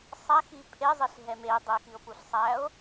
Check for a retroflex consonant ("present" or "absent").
absent